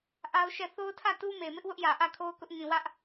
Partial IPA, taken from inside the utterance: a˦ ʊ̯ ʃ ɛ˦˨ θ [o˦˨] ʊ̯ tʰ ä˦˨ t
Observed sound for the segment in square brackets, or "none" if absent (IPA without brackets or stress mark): o˦